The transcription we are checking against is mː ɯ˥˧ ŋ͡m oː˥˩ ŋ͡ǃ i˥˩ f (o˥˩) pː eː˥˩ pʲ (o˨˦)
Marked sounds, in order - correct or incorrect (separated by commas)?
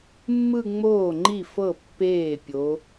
incorrect, correct